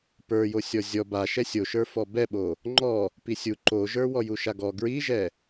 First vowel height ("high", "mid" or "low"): mid